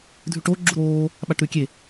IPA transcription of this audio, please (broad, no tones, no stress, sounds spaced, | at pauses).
dʱ ʉ ʈ o ɡ͡ǁ u ɾ oː | ɓ a ʈ ɾ ʉ kʲ e